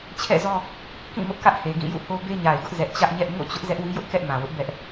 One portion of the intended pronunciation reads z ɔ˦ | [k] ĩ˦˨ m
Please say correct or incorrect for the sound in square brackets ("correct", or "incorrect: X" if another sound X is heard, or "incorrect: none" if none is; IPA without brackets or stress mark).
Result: correct